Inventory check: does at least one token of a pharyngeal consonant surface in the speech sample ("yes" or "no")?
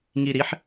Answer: yes